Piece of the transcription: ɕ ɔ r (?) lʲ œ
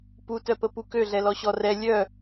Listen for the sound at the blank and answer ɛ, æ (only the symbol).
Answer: ɛ